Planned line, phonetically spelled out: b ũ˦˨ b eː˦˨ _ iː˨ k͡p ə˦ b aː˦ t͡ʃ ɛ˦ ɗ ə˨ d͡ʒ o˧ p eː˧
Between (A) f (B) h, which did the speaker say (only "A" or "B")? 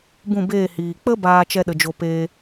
B